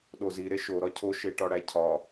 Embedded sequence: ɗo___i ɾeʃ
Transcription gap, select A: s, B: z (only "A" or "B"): B